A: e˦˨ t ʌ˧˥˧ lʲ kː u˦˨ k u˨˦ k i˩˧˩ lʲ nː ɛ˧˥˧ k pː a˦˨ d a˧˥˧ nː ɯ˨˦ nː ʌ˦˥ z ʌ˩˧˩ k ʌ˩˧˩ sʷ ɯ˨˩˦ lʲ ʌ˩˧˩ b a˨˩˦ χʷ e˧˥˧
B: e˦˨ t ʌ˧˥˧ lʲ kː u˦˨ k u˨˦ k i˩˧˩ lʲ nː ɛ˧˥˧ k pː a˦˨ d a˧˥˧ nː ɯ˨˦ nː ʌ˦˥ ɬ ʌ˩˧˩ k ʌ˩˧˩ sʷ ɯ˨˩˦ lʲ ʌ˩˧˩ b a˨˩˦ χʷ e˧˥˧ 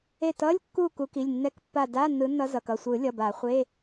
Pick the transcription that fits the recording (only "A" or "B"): A